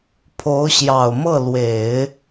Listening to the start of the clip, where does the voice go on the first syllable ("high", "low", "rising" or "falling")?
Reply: rising